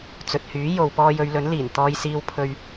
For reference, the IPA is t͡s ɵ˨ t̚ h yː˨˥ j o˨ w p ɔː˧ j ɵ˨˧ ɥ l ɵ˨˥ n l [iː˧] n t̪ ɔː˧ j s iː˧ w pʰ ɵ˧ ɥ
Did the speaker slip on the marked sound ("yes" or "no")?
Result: yes